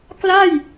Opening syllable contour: falling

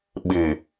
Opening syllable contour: low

